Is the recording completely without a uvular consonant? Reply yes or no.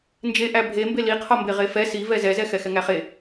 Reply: no